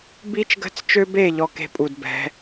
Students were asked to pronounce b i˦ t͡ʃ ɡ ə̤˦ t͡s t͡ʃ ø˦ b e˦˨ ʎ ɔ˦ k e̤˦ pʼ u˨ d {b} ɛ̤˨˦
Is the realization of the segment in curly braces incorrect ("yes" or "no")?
no